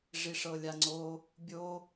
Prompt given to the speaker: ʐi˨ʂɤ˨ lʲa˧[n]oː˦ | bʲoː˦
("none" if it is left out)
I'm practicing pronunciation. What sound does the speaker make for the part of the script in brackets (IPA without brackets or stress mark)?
ŋ͡ǀ